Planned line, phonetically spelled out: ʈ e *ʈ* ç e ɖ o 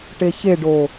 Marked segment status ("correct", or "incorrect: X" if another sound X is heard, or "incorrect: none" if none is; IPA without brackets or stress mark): incorrect: none